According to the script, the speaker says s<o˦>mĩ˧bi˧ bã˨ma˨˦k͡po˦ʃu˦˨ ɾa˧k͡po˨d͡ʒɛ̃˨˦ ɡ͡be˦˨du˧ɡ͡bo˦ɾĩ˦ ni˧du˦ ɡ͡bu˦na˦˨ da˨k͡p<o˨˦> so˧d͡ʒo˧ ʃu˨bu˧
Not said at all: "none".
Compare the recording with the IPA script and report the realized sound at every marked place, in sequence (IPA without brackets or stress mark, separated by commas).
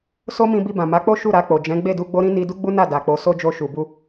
o˦, o˨˦